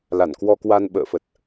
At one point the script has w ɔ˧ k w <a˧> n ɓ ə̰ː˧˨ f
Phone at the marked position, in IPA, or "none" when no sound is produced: a˧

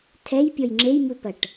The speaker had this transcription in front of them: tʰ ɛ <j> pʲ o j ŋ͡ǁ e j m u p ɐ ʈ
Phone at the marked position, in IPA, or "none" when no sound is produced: j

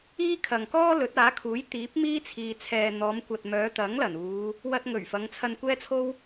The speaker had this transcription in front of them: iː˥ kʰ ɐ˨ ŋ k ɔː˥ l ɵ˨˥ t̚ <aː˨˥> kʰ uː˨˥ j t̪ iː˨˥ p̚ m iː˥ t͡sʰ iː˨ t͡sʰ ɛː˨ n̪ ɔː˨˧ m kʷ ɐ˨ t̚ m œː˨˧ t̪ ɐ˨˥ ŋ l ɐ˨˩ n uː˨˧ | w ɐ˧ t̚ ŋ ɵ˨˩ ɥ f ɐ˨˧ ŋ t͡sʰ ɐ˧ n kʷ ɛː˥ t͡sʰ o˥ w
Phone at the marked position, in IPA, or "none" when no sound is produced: aː˨˥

